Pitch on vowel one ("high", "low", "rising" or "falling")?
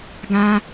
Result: high